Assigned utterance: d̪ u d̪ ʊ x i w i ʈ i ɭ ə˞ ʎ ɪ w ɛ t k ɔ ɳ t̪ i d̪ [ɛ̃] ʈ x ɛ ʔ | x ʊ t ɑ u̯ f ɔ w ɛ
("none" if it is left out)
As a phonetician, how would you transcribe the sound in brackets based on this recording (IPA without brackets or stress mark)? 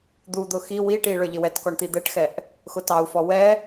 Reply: ɛ